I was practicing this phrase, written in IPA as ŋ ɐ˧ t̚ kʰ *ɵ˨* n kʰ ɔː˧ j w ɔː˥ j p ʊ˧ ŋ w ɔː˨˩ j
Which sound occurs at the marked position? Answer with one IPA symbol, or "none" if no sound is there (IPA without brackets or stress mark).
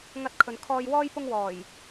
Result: ɵ˨